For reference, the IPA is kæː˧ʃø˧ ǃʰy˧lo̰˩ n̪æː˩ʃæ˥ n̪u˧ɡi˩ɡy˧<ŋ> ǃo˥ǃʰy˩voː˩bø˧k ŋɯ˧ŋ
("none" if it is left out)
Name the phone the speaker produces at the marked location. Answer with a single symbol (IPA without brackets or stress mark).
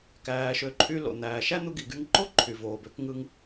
ŋ